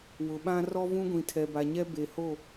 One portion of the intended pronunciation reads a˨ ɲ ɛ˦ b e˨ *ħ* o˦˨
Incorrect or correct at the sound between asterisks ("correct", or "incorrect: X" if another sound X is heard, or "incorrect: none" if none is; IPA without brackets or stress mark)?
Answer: incorrect: h